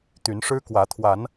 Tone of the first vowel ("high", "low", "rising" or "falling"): rising